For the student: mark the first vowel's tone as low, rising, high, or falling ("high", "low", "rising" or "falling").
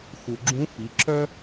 low